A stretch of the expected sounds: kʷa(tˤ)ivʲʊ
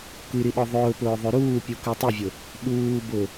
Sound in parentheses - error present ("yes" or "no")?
no